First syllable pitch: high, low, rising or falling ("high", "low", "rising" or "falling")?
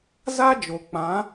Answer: high